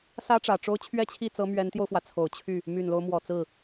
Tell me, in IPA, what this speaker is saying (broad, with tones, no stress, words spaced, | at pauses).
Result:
sä˥ʈ͡ʂä˨˩ʈ͡ʂo˥ʊ̯ t͡ɕʰɥɛ˥t͡ɕʰi˥˩t͡sɤ˧˥ mɥɛ˧˥nt̪jo˧ʊ̯fwä˩ t͡sʰo˨˩ʊ̯t͡ɕʰy˥˩ | my˨˩nlo˦ʊ̯ mwɔ˨˩t͡sɹ̩˥˩